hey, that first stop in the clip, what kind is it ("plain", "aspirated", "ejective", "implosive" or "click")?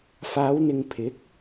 aspirated